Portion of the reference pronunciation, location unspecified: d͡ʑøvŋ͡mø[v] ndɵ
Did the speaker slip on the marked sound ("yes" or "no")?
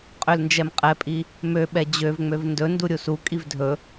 no